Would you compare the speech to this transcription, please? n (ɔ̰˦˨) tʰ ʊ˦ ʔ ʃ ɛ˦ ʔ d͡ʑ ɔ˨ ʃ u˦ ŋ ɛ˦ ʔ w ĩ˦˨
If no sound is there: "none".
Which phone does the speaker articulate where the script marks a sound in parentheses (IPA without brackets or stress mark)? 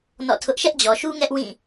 ɔ̰˦˨